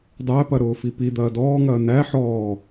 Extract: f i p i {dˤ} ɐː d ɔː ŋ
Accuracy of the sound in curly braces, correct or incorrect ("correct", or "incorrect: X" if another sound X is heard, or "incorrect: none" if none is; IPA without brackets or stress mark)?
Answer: incorrect: d̪